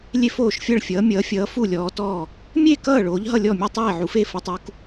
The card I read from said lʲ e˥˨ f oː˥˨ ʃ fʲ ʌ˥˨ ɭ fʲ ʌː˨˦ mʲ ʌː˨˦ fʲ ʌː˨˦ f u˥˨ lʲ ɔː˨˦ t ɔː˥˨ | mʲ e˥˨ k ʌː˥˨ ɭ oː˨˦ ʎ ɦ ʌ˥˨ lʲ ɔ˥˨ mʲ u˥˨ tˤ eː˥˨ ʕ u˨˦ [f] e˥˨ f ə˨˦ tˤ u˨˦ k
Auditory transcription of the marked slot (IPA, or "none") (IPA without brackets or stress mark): f